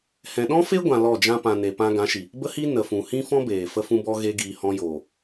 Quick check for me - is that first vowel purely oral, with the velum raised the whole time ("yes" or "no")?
no